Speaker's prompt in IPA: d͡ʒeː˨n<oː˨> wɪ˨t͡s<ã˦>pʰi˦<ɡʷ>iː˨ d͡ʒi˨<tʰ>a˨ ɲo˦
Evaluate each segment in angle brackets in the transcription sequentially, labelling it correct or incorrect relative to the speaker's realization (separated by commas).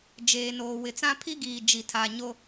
correct, correct, incorrect, correct